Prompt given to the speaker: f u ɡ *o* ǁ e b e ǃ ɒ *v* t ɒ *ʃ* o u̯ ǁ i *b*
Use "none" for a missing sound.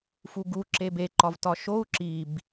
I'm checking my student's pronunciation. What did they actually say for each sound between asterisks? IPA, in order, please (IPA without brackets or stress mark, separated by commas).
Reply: u, v, ʃ, b